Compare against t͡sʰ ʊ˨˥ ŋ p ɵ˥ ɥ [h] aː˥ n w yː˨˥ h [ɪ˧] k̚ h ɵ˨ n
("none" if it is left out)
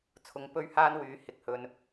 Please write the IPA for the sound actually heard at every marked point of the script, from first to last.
h, ɪ˨

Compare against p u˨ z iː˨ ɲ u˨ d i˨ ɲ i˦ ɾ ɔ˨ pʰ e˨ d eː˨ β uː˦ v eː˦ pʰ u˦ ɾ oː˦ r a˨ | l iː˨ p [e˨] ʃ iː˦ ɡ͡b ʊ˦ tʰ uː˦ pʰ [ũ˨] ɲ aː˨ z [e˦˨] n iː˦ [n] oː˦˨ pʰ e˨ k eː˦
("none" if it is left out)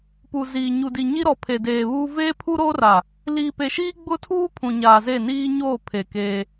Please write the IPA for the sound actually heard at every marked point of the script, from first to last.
e˨, ũ˨, e˦˨, ɲ

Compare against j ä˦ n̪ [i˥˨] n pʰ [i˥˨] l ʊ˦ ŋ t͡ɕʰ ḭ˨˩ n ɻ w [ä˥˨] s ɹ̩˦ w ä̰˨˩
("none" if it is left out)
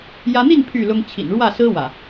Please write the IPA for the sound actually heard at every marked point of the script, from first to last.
i˥˨, y˥˨, ä˥˨

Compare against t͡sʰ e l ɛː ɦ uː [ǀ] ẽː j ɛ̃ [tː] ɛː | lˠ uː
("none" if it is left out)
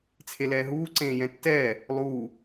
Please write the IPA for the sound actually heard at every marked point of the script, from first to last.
ǀ, tː

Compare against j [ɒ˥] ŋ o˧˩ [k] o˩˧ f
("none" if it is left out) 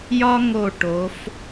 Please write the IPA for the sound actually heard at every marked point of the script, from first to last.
ɒ˥, ʈ

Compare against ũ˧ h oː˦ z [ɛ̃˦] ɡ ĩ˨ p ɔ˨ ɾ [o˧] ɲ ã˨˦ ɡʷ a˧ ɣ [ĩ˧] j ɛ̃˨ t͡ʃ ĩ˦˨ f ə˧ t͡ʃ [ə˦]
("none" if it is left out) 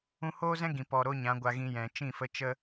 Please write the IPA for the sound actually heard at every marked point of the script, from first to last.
ɛ̃˦, o˦, ĩ˧, ə˦

